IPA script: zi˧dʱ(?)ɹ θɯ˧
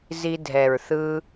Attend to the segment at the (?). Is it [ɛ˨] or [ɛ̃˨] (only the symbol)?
ɛ˨